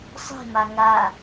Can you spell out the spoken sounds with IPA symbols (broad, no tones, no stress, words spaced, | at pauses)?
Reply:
sˤe̤ma ŋa